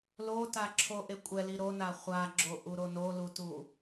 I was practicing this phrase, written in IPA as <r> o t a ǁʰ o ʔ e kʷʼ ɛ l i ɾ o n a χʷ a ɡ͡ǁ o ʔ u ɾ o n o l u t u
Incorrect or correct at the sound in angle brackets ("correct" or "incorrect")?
incorrect